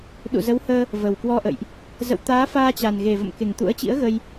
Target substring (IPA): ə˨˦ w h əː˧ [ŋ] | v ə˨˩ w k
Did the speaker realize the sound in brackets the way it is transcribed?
no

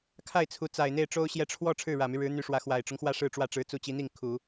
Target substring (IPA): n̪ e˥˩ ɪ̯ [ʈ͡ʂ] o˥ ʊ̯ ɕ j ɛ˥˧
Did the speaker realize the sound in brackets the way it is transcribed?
yes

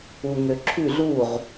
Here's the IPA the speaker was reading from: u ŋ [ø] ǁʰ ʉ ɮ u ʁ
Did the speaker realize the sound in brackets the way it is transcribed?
yes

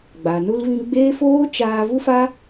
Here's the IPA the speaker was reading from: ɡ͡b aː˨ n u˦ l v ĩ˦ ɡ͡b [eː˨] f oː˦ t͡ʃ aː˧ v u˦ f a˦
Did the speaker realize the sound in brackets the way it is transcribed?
no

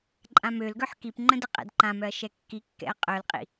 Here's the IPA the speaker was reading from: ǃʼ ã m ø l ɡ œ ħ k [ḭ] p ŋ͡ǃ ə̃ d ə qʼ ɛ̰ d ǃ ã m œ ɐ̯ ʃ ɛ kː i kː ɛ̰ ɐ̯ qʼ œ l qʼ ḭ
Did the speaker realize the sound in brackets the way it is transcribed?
no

